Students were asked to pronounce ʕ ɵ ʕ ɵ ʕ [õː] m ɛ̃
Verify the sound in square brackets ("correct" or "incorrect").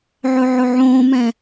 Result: correct